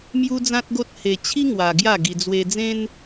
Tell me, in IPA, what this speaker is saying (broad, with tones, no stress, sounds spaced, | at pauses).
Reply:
m j u˦ d͡z ã˦ t̚ ɡ o˦ t̚ h e˧ t͡ɕʰ i˦ ŋ w a˧ ɡ j a˥˧ ɡ i˧ d͡z w e˧ d͡z ẽ˦ n